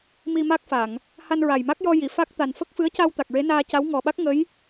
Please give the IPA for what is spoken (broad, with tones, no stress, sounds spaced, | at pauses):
m i˧ m a˦˥ k̚ f a˨˩˨ ŋ | h a˧ n ɹ a˨˩ j m a˦˥ k̚ j ɔ˧ j i˨˩˨ f a˦˥ k̚ t̪ a˨˩ n f ə˦˥ k̚ f ɨ˧˥ ə̯ c a˧ w t̪ a˨˩ k̚ ɹ e˧˥ n aː˧ c a˧˥ w ŋ ɔ˨˩ ɓ a˦˥ k̚ ŋ ə˧˥ j